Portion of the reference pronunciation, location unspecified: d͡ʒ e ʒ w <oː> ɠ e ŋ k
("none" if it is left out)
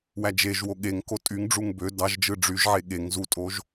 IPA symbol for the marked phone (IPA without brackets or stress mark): o